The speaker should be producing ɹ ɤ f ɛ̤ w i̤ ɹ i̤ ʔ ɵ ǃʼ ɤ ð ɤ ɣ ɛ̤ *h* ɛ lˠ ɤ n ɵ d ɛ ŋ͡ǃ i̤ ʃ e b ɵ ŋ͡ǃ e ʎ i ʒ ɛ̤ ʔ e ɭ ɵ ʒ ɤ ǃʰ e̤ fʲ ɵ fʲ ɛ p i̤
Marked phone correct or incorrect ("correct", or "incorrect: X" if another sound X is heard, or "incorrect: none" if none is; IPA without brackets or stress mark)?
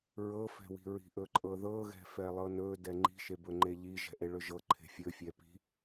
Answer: incorrect: f